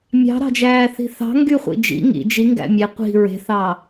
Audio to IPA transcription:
mʲ ɑ̤ ɾ ɑ̤ d͡ʒ æː θ i̤ θ ɑ̤ ŋ ɡ y χʷ ḭ d͡ʒ ḭ ŋ ḭ d͡ʒ i ŋ ɡ æ̰ mʲ e qʷ i̤ ɹ e̤ θ ɑː

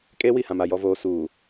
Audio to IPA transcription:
kʼ eː˦ w i˦˨ h ã˨ m a˨ j ɔ˨ v oː˨ s uː˨

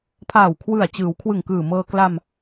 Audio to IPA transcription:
pʰ aː˨˩ w kʰ w ɯ˨˩ a̯ t͡ɕ ɯː˩˦ w kʰ w ɯ˨˩ ŋ k ɯː˨˩ m ɤː˧ k l a˧ m

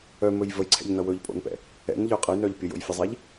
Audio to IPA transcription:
œ m ɵ j v ə j ǀʰ ɛ̰ ʎ n ʌ w ɵ ʎ pʼ o̰ n p ɛ̰ | ɛ̰ n ʎ œ qʼ ə j n œ ʎ pʲ ə j o̰ j fʲ ʌ zˤ ɛ ʎ

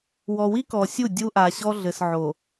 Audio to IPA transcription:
w ɔ˨ w i˦ k ɔ˨ sʲ u˦˨ dʲ u˦ ʔ a˨ ɕ ɔ˦ ɮ ɘ˨ s ʕ o˨

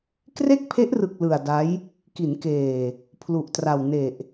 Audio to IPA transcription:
k r e˥˩ k̚ pʰ e˦˥ ʔ r ɯ˨˩ k̚ l ɯ˨˩ a̯ d a˦˥ j | k i˩˦ n k eː˨˩ | pʰ l u˨˩ ʔ t r a˨˩ w n e˨˩ ʔ

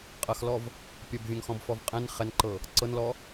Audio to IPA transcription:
qʼ ɐ x l ɔ v | pʲ œ b vʲ œ̃ ŋ x ɔ̃ b f ɔ v qʼ ɛ̃ n χ ɛ n ǃ ɤ | ǀ ɤ n l ɔ

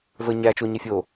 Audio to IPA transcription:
v ə ɲ æ t͡ʃ o ɲ ɪ fʲ o

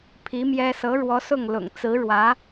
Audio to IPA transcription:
pʰ i˧˥ m j ɛ˥ s ɤ˧˥ ɻ w ɔ˧˥ s ʊ˥˩ ŋ l ʊ̰˨˩ ŋ t͡s ɹ̩˧˥ ɻ w ä˧˥

